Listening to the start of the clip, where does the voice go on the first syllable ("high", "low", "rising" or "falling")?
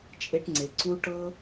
high